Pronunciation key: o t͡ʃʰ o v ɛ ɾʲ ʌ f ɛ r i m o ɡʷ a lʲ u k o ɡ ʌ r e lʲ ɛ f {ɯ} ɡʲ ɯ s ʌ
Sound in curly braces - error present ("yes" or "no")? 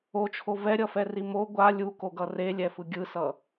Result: no